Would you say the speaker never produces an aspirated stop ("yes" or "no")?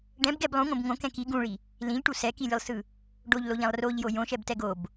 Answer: yes